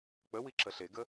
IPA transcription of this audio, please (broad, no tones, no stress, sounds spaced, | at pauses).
k͡p ə w i ǁ ə ɬ e ɡ ə